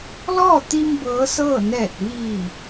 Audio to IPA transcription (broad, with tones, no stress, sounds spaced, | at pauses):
l ɔː˥˨ t̪ i˧ m b ɤː˧˥ s ɤː˥˨ n ɛː˧˩ t̚ ʋ iː˧˩